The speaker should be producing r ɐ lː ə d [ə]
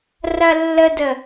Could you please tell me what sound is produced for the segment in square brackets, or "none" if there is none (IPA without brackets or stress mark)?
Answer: ə